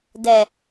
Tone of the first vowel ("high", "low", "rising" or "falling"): low